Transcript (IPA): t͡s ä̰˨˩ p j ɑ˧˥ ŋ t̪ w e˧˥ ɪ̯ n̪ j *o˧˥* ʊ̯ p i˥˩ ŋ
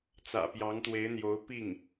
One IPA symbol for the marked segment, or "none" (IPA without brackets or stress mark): o˧˥